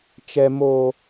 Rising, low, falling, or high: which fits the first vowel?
high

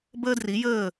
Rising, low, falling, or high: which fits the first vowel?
high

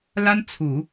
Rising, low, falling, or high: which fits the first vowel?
high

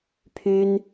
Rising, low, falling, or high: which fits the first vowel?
high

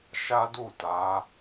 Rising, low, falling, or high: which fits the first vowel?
high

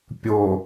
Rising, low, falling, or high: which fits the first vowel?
low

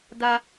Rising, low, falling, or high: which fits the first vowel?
high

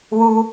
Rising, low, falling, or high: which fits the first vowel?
high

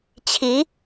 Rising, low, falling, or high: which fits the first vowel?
rising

